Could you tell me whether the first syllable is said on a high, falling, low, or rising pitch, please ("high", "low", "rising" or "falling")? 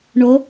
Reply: rising